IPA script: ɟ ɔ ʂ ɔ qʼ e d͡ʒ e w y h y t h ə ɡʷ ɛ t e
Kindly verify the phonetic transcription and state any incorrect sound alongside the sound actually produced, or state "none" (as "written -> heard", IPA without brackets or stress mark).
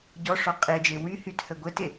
none